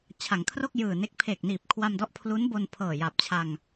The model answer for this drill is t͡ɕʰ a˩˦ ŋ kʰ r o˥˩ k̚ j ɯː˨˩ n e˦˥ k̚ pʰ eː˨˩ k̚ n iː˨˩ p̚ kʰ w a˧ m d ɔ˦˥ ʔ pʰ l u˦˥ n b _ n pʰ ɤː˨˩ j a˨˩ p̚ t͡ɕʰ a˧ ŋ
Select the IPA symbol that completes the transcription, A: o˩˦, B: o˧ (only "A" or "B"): B